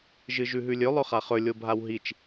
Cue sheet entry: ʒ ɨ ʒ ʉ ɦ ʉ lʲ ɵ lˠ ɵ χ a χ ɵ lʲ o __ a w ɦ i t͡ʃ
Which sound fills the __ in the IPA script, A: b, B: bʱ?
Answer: B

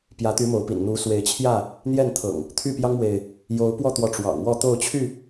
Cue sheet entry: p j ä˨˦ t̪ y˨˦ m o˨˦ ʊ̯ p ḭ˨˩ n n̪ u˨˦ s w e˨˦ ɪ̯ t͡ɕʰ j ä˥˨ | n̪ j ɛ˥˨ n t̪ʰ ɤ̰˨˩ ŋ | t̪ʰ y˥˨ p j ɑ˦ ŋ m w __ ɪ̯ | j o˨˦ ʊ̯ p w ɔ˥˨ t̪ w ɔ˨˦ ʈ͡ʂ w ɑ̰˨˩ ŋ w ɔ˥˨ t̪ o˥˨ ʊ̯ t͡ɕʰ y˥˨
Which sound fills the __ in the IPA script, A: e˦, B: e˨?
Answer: B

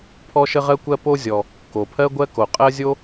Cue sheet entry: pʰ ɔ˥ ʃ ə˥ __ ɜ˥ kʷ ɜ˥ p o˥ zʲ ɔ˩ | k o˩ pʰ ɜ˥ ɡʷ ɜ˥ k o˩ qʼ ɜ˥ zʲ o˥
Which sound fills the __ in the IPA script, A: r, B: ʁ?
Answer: B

